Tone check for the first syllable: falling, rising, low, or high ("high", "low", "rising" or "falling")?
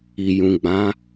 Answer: low